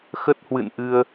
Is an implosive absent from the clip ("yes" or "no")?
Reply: yes